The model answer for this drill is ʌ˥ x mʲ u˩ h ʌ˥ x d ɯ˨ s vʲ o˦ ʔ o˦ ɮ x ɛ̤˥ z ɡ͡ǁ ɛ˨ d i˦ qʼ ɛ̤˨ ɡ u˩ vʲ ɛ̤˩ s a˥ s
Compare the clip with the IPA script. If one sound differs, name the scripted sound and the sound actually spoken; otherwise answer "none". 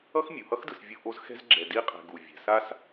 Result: ɮ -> z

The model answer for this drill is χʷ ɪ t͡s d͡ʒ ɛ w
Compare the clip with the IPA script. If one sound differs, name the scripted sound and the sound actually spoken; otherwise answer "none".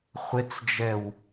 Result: none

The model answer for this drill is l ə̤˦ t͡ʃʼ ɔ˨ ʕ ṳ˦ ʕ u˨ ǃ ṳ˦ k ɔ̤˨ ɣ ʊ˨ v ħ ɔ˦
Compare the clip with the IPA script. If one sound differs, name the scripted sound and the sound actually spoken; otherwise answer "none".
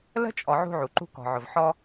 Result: ɣ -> ʕ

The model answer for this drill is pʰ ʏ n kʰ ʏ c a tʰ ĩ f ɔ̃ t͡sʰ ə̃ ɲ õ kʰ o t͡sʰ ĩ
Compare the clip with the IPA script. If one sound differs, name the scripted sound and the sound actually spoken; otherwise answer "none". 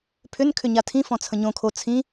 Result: c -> ɲ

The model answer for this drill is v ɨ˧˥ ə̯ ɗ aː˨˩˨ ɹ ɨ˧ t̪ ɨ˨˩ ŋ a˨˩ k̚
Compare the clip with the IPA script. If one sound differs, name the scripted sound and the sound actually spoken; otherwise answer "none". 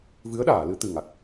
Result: ɹ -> l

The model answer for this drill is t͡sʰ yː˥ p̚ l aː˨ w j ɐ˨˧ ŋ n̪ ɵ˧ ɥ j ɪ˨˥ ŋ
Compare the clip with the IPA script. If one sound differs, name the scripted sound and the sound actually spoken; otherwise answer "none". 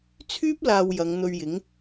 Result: none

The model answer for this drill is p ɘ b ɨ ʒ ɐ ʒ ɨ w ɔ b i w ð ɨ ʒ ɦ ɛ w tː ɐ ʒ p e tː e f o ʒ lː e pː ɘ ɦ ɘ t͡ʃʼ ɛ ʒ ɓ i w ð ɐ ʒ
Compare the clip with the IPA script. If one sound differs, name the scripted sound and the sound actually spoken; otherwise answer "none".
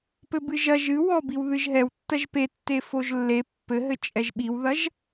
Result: none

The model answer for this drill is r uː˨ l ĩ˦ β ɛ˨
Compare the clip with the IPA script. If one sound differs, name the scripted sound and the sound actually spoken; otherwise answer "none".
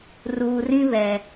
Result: l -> r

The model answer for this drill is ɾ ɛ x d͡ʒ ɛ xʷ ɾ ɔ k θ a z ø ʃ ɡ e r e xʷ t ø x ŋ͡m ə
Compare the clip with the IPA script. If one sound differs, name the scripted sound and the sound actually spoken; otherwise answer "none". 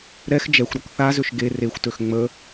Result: none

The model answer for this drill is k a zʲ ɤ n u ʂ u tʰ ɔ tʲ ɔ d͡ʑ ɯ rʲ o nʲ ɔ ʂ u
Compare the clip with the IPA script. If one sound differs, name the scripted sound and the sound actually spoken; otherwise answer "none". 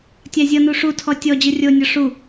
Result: k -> tʲ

